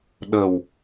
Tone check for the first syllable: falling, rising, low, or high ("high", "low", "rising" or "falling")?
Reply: low